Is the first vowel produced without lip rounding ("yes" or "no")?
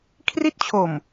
yes